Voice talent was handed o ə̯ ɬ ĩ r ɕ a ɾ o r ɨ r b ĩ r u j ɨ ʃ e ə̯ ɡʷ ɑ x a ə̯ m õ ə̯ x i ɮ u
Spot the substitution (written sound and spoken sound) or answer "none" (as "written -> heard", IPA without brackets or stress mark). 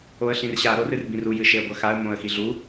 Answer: ɑ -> ɐ